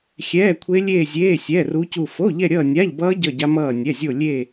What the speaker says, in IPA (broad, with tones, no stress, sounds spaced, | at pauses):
xʲ ɛː˧˥˧ kʷʰ e˦˥ lʲ eː˥˧ zʲ eː˧˥˧ sʲ ɛː˧˥˧ r u˦˥ c u˥˧ f o˧˥˧ ʎ ɛ˥˧ ɾʲ ʌː˥˧ nʲ a˧˥˧ ʎ b ʌː˦˥ ɟ ʌ˥˧ ɟ a˦˥ m ʌː˥˧ nʲ ɛ˧˥˧ zʲ o˥˧ lʲ e˥˧